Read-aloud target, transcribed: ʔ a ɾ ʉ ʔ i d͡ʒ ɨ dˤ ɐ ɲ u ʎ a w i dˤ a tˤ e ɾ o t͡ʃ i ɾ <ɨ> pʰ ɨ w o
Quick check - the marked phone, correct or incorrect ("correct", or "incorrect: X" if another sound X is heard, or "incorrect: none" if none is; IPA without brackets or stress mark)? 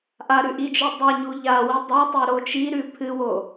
incorrect: ʉ